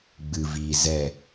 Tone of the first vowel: low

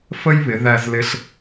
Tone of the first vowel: high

